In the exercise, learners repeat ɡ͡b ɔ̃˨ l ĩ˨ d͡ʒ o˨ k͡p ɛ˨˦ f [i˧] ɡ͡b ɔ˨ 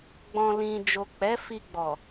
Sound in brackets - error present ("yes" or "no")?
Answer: no